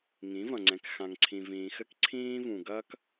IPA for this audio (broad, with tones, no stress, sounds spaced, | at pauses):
ŋ ĩ˨˦ v ɐ̃˨ ŋ͡ǀ ɛ̃˨ k x ã˨ ŋ ǀʰ ĩ˨ v ĩː˨ x ɘ˦ k ǀʰ ĩː˦ v ũ˨ ɡ ɐː˦ k